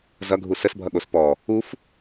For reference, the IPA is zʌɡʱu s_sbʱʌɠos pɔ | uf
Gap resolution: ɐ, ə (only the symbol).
ə